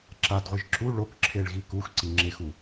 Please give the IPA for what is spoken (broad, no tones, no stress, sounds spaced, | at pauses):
ǁ a d ʁʷ i ʒ ǁ u ɭ o k ǁʰ e ɭ ɣ i k u x ǀ i ŋ͡ǁ e x u